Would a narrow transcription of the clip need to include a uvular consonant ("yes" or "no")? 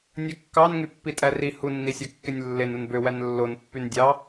no